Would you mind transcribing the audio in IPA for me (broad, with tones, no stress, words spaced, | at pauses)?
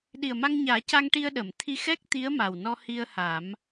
ɗi˨˩ə̯ma˧ŋɲaː˨˩˦ca˧ŋ ʈi˧ə̯ɗə˨˩˨mt̪ʰi˧xɛ˦˥k̚ t̪i˧˥ə̯ ma˨˩w nɔ˧ hi˧ə̯ha˨˩˦m